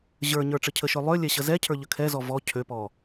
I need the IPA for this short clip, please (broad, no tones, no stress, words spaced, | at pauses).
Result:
ʑə˞ɲə˞ ʈ͡ʂəcʰəʃø lˠø lʲɛɕəzɛcʰə˞ ʎəkʰɛzɔ vɔ cʰøpɔ